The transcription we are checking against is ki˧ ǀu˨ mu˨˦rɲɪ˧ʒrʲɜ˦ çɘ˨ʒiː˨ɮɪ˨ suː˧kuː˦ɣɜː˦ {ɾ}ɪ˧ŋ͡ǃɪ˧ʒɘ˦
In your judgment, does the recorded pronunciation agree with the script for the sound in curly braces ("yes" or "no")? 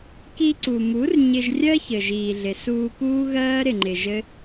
yes